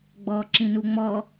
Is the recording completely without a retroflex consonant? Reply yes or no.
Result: yes